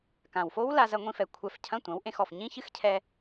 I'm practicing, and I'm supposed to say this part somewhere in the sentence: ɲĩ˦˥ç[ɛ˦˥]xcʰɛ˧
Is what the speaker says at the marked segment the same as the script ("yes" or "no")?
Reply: no